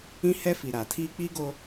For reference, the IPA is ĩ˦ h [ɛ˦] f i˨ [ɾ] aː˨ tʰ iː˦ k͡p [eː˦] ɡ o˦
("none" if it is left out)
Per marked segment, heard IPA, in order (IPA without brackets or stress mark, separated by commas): ɛ˦, ɾ, iː˦